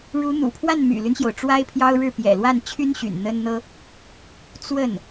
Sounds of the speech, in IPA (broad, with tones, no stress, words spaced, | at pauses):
ɻu˧˥n̪ṵ˨˩pʰwa˥˩n my̰˨˩ly˦nɕjo˩ʊ̯ ʈ͡ʂwa˥ɪ̯pʰjɑ˥ʊ̯ɻɻ̩˥˩ pjɛ̰˨˩lwa˥˩nt͡ɕʰy˥nɕy̰˨˩n n̪ə˥nn̪ɤ˥ | t͡swə˥˩n